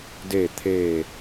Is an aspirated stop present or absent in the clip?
present